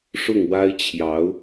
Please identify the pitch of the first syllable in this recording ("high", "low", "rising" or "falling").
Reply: falling